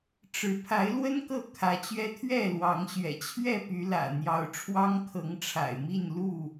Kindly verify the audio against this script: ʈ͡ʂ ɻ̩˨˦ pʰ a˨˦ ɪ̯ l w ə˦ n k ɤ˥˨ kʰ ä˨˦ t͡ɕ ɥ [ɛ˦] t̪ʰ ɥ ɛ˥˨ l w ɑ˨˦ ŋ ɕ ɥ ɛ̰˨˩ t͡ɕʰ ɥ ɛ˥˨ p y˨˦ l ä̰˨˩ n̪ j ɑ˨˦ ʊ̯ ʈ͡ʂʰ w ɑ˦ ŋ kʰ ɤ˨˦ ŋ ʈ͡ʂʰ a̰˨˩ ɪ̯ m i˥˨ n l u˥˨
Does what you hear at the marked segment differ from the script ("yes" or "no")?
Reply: no